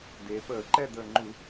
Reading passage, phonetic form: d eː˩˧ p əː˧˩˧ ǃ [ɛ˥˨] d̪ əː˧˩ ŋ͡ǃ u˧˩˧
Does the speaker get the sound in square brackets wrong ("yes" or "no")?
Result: no